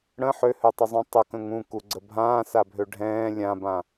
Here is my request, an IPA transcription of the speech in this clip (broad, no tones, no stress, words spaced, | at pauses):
ɽə̃ ħøhøtˤəzˤũ tˤəkə̃ŋ ũkuɡ͡ǀə bʱãːsabʱø ɖʱɛ̃ː lʲãbã